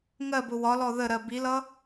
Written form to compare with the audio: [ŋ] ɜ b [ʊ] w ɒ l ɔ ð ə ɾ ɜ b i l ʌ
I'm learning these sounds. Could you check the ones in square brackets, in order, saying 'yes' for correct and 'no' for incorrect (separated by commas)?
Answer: yes, yes